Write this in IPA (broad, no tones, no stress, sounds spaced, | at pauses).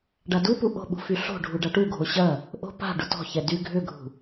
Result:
ɖ a d u p u ʔ o̤ ɓ ṳ f y ɬ o̤ ɖʱ u ɖ a ʈ u ɡʱ o ɕ ɐ | ʔ o̤ p a̤ ɖ ʊ t ɔ̤ ç ɛ d y ɡʱ ʏ ɡʱ ṳ